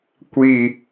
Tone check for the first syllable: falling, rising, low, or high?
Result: low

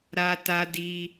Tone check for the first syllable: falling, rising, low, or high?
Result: high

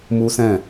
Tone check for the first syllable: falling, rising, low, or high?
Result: high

